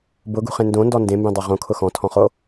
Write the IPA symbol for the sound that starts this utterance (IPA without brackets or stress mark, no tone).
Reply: b